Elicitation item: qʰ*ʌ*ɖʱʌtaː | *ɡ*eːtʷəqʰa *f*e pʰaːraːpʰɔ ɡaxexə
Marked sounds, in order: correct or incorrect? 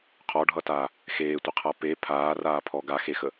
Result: incorrect: ɔ, incorrect: x, incorrect: p

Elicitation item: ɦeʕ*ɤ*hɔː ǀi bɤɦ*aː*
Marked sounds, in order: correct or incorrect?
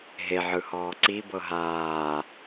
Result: incorrect: ɯ, correct

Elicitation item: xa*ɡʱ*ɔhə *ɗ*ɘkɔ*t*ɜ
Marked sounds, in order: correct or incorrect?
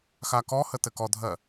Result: incorrect: k, incorrect: t, incorrect: dʱ

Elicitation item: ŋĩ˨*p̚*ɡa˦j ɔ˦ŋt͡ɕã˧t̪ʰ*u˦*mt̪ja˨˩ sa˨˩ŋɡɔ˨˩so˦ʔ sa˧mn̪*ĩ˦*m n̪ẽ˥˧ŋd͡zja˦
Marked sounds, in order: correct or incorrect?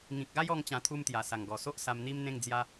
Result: incorrect: k̚, correct, incorrect: i˦

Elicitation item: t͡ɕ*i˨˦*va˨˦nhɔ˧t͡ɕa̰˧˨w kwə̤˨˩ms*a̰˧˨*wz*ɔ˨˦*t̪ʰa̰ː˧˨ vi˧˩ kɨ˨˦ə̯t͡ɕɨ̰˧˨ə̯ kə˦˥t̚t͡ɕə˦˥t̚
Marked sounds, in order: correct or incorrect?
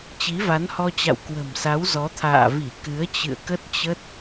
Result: correct, incorrect: a˨˦, correct

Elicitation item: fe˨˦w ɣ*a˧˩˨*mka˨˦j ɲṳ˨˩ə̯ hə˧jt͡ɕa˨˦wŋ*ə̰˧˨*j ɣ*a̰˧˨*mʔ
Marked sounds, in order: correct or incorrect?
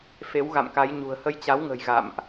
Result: incorrect: a̰˧˨, incorrect: ə̤˨˩, correct

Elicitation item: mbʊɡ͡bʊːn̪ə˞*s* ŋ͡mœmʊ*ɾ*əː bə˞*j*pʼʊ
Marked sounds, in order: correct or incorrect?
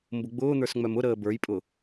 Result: correct, correct, correct

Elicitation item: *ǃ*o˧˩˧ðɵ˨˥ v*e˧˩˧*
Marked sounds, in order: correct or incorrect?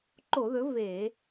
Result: correct, correct

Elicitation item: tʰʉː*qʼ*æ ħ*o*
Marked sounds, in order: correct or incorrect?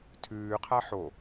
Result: incorrect: qʰ, correct

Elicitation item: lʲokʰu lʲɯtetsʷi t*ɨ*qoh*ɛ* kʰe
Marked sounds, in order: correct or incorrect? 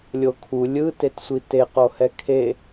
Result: incorrect: e, correct

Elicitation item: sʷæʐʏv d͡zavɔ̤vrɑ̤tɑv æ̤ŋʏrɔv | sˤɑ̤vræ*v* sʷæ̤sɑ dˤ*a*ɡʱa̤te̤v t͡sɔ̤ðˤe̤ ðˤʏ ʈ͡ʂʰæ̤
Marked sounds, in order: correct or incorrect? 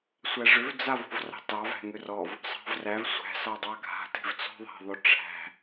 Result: correct, incorrect: ɑ

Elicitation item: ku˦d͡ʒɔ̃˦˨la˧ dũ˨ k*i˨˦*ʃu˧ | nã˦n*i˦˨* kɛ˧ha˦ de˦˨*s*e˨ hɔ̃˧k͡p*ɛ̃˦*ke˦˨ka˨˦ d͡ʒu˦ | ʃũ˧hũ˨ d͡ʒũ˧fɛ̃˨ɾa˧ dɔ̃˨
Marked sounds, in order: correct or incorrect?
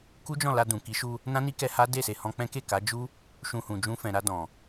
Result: correct, incorrect: i˦, correct, correct

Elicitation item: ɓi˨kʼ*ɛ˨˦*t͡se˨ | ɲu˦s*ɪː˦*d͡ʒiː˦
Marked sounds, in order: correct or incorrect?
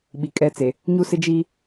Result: incorrect: ɛ˦, incorrect: ɪ˦

